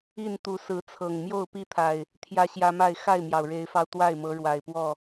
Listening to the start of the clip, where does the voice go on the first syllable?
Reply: falling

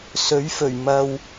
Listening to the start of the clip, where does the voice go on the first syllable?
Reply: rising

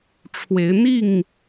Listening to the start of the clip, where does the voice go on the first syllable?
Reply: rising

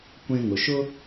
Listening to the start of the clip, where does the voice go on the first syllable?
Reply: high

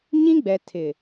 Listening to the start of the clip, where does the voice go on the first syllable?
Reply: high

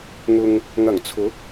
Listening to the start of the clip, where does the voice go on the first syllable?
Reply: low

